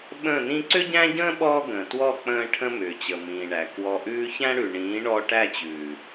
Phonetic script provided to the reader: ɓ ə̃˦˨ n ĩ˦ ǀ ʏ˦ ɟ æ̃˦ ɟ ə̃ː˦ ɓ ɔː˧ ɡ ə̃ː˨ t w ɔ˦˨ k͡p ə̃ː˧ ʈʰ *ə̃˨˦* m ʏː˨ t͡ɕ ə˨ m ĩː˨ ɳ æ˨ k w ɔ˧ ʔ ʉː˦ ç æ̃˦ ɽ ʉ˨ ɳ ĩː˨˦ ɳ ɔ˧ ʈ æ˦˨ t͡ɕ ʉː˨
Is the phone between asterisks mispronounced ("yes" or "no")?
yes